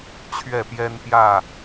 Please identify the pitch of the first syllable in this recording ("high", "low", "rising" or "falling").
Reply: falling